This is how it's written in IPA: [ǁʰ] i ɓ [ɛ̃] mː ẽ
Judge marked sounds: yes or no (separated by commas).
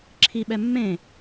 yes, no